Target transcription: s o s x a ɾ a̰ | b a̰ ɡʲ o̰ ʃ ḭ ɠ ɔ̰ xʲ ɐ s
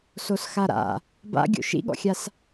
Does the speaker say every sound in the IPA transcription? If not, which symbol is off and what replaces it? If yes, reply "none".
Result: ɐ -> a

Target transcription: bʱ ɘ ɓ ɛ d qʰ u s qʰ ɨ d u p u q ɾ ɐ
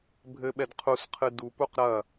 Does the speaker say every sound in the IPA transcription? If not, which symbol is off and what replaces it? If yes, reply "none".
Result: none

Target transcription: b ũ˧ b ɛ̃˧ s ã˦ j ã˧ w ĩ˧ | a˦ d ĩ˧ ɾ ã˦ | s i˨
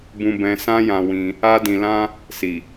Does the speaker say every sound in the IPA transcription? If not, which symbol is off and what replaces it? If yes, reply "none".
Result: ɾ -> l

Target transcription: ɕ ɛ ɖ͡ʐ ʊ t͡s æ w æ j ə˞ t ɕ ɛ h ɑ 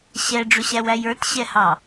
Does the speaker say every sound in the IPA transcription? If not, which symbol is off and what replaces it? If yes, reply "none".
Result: t͡s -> ɕ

